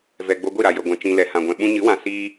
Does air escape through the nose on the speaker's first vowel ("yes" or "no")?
no